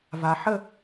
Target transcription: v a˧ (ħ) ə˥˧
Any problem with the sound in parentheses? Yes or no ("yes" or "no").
no